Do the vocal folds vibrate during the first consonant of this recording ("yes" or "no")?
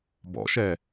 yes